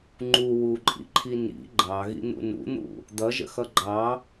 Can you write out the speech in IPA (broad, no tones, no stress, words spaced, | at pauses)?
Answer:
ŋ͡ǃu wuǃʼḭǃʰi nḭ ɡ͡ǃɑɣḭn̪ṵ nṵn̪ṵ | d̪ʌʒə̰xʌ ɡ͡ǃɑ